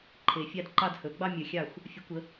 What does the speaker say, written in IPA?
ǃʰ e˨˩˦ fʲ ɑ˦ d ǃ ɑ˥˨ d h ɵ˨˩˦ ɡ͡b ɑ˦ mʲ ə˨˩˦ xʲ ɑ˥˨ xʷ | fʲ ə˨˩˦ kʷ ə˨˩˦

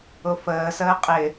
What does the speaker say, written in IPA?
ʊ f əː s əː qʼ ɪ

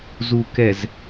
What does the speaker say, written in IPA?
z u˨ k ɛ˨ z

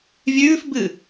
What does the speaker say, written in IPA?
vʲ ʉː f b ɨ

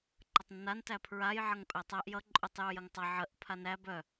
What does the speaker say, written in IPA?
ǃ ʌ tˤ nː a n t æ pʰ ɹ a j ʕ ʌ ŋ pʼ ɛ tˤ æ ʔ j ʌ ǃʼ u tˤ j u j ə ŋ tˤ ʌ ʕ ə ʔ pʰ a n æ b œ

